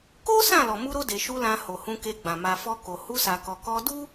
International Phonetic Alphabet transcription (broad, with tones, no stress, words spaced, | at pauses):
ko˦ sã˦˨ lɔ˨mu˧ɾo˧ de˨ʃu˧ lã˧ho˨ hũ˧ke˧ɡ͡bã˨ ma˨fɔ˧ko˨ hu˧sa˨kɔ˨ kɔ˧du˦